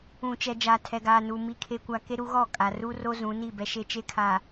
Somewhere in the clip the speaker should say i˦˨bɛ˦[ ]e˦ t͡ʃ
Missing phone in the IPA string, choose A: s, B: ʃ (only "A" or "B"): B